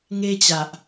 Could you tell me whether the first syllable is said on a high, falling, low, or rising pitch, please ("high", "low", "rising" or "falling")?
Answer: high